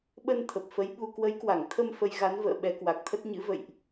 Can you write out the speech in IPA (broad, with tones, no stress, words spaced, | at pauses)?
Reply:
ɓə˧n t̪ʰə˨˩p̚fə˨˦j ɓu˧ kwə˨˦jkwa˧˩ŋt̪ʰə˧m fə˧j ɣa˨˦nvə̰ː˧˨ ɓɛ˨˦kwa˨˩k̚t̪ʰə˦˥t̚ ɲɨ̰˧˥və̰˧˨jʔ